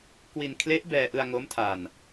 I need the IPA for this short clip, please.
k w i˧ n kʰ l e˦˥ ʔ b ɛː˧ ʔ ɯ˧ a̯ ŋ o˦˥ m tʰ a˧ n

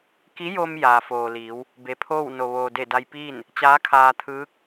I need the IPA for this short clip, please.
k i˧˥ j o˧ m j aː˩ f oː˩ l iː˩˧ w | b e˩ pʰ oː˥˨ w n o˩ ʋ oː˩ d e˧˩ d a˧ j p iː˥˨ n | t͡ɕ aː˧˥ kʰ aː˧ t̪ʰ ɯː˧˥ k̚

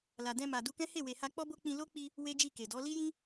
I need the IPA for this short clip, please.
l a˨ d ɛ̃˧ m a˨ d u˧ k ɛ̃˦ h e˦˨ w e˨ h a˧ k͡p ɔ˦ b o˦ k͡p ĩ˧ l o˦ k͡p i˧ | w e˦ d͡ʒ i˦˨ k e˨ d ɔ˨˦ l i˦ j ĩ˦

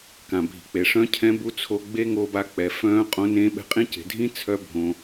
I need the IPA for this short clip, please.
k ã˩ bʱ i̤˩ k͡p e˩ ʂ œ̃˥ cʰ ɛ̃˧˥ b u˧˥ t͡sʰ o˧ ɡ͡b e˥ ŋ o˧ b a˧ k͡p ɛ˩˧ f œ̃ː˧˥ qʼ õ˧˥ n ẽː˧˥ ɓ ɛ̤˧ qʼ ĩ˥ c e̤˩˧ dʱ ĩ˥ t͡sʰ œ˥ bʱ õ˩

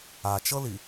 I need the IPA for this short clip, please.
a t͡ʃ ɤ l i

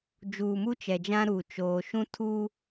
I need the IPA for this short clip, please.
d͡ʒ uː˨ m u˦ t͡ʃ ɛ˨ d͡ʒ ã˦ ɾ u˦˨ t͡ʃ oː˦ ʃ ũ˦ tʰ u˦

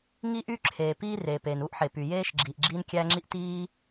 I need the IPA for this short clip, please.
ŋ i˥ ʔ y˥ ǁʰ eː˩ p iː˥ r eː˩ p eː˩ n uː˥ ʔ ħ e˩ p y˩ j eː˥ ʃ ɡ͡ǁ iː˩ ʔ ɡ͡ǁ iː˥ n kʲ æ˥ ŋ͡ǁ i˥ ʔ t iː˥

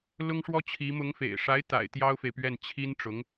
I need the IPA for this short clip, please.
l ʊ˥ ŋ ʂ w ɔ˥ t͡ɕʰ i˧˥ m ʊ˧˥ ŋ f ḛ˨˩ ɪ̯ ʂ a˧˥ ɪ̯ t̪ a̰˨˩ ɪ̯ t̪ j ɑ˥ ʊ̯ f e˨ ɪ̯ p ɥ ɛ˥˩ n t͡ɕʰ i˥ n ʈ͡ʂ ʊ˧˥ ŋ

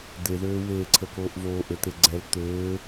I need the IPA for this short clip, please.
d̪ e ð øː w eː ǀʰ ə k oː ʔ v oː ʔ ø t̪ e ɡ͡ǀ ɛ l t̪ øː

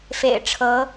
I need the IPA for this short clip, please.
f ḛ˨˩ ɪ̯ ʈ͡ʂʰ ɤ˧˥

